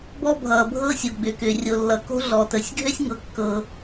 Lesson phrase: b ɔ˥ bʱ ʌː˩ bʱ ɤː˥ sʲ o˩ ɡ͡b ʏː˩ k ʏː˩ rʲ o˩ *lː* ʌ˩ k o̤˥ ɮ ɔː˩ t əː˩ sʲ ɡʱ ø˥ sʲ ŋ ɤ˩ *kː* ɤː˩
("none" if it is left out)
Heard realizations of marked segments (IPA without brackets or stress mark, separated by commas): lː, kː